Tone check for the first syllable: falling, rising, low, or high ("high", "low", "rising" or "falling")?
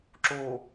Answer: low